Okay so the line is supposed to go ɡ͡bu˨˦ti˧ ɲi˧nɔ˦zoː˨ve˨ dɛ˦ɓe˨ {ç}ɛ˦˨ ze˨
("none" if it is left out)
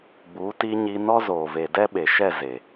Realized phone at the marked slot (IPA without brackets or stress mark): ʃ